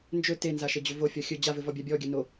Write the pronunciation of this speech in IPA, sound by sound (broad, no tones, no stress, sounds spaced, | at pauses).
n d͡ʒ ɵ t e n z a ʃ ɘ d͡ʑ ɵ v o fʲ ɔ xʲ ɵ d͡ʑ a v ɘ v ɔ bʲ a bʲ ɔ ɡʲ ɘ n o